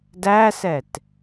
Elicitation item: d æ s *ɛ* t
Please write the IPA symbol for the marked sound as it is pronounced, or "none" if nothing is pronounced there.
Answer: ɛ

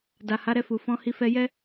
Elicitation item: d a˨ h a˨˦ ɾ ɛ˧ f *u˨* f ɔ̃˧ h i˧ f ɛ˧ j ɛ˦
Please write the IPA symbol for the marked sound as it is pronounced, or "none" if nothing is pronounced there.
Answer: u˨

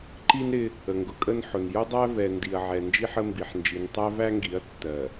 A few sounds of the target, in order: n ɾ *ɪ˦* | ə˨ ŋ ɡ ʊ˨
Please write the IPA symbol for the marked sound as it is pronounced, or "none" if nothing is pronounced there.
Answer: ɪ˦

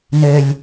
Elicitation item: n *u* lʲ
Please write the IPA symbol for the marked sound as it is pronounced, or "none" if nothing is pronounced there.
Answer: ø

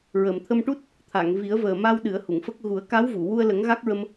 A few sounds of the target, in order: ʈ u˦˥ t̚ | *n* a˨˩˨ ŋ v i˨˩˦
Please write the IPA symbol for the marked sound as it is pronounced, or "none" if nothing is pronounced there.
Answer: t̪ʰ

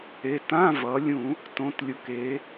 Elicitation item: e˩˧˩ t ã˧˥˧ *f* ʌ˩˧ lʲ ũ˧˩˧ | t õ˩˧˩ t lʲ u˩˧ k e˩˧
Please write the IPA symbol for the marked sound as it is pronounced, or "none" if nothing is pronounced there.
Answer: v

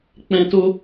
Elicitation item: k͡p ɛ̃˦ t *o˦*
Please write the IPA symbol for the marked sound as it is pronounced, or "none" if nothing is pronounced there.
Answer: o˦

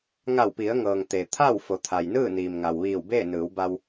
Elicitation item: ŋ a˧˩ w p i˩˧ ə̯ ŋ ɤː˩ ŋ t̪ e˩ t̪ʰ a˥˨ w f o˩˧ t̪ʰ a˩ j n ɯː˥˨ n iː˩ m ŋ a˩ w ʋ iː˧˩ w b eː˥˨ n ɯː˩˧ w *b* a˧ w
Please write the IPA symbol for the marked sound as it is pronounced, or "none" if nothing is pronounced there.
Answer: b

